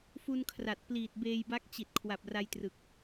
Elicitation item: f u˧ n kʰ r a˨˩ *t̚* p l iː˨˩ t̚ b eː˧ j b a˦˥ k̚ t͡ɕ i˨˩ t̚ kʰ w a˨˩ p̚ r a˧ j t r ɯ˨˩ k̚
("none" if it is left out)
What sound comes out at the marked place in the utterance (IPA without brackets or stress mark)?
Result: t̚